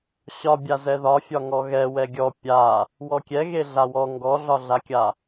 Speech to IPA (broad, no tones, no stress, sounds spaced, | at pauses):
ɕ ɒ bʲ a z ɛ ð ɒ fʲ ɒ ŋ ɔ ɣ ɛ w ɛ ɡʲ ɔ pʲ a | w ɔ kʲ ɛ ɣ e ɮ a w ɔ ŋ ɡ ɔ ɮ ɒ ɮ a kʲ a